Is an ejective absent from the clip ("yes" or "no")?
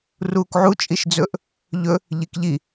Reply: no